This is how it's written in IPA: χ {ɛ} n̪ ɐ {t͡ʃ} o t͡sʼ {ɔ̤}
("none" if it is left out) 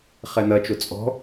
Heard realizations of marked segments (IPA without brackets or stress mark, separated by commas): ɛ, t͡ʃ, ɔ̤